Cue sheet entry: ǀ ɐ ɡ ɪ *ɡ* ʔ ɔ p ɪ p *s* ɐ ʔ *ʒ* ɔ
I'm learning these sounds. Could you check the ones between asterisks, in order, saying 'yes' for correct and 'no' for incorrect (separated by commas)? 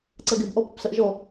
no, yes, yes